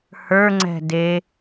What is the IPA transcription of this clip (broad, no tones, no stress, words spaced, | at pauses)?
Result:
hə˞ŋ͡ǀɛ̤ de